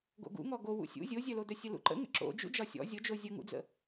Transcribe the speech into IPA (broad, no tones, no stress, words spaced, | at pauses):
ɡo̰ɡṵ ŋɔɡo wṵsʲṵ zʲozʲœlodœ sʲəlṵǃə̰ ŋə̰ǁo̰d͡ʒṵ d͡ʒɒsʲɔ̰ zʲod͡ʒo zʲəŋṵd͡zə̰